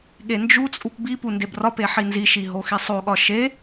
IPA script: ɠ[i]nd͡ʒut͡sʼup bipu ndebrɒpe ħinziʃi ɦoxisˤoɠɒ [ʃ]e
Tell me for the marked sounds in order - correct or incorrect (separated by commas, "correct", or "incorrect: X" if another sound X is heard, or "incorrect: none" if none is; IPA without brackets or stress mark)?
incorrect: e, correct